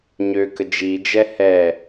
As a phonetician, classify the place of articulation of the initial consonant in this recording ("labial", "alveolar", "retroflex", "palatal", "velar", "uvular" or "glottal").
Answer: palatal